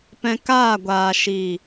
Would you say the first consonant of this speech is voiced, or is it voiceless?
voiceless